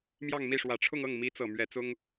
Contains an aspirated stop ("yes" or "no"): yes